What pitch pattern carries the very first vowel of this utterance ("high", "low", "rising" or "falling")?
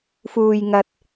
high